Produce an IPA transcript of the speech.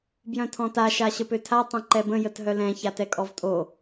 b j œ̃ tʰ ɔ̃ t a ʃ a ɕ ə p ø tʰ a tˤ œ̃ ǃ ɛ b ə̃ j ə t ɦ œ l ɛ̃ ç a t ɛ kʼ ɔ v tʼ o

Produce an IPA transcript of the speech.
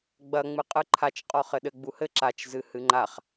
ɡ͡b ɐ ŋ͡m ɨ qʼ ɨ ǃʰ a t͡ʃ qʼ ɔ χ ɘ ɗ ɘ ɡ͡b u h ɘ ǁ a t͡ʃ z ɨ h ɨ ŋ͡ǃ a χ

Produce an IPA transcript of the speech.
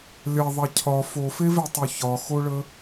lʲ ɐ ðˤ ɐ cʰ ɒ f o f e v e tˤ o ç ɒ x o ɭ ə

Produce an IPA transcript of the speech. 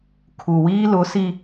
kʰ u˨ w iː˦ l ʊ˨˦ s i˦

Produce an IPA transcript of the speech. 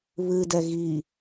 β ɨ d ɛ ɣ i

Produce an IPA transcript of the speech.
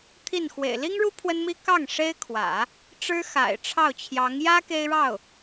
t̪ʰ i˥˩ n x w ḛ˨˩ ɪ̯ l i˥ ŋ ɻ u˥ pʰ w ə˥ n m i˥ k ɑ˥˩ ŋ ʂ e˥ ɪ̯ kʰ w ä̰˨˩˦ | ʈ͡ʂ ɻ̩˥ x a̰˨˩ ɪ̯ ʈ͡ʂʰ ɑ˥˩ ʊ̯ t͡ɕʰ j ɑ˧˥ ŋ j ä˥ k e˥ ɪ̯ ɻ ɑ˥˩ ʊ̯

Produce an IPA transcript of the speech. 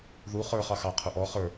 ð u χ ə˞ χ ɑ x ɑ qʰ ʊ ʔ ɔ χ ə˞

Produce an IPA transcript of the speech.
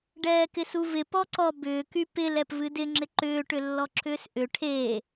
ɖ ɛː k ɪ s u v ɪ p ɔ ǀ ɔ b ʏː k y p ɪ l ɛ p v ɨ d ɪ ŋ͡ǁ ɪ ǃ ʏː ʈ ʏ lː ɔ ǁʰ ʏː s ʔ ʏ ʈʰ eː

